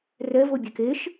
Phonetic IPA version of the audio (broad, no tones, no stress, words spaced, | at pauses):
rɛvo bʲɛkeʃ